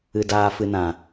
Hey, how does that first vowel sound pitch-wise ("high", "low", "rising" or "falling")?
low